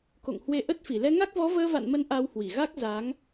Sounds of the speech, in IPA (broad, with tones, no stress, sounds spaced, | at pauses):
k o̰˧˨ ŋ h w e˧ ʔ ə˦˥ t̚ f i˧˩ l ɛ˧ ŋ a˦˥ k̚ v ɔ˨˦ v əː˧ v a̰˧˨ n m ə˨˦ n ʔ a˧ w h w i˧˩ ɣ a˦˥ k̚ z a˨˦ ŋ